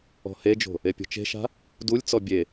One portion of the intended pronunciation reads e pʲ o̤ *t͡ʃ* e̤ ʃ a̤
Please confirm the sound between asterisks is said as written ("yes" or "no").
yes